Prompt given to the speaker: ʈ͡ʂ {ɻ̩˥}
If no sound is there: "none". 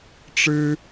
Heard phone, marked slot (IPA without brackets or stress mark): ɻ̩˥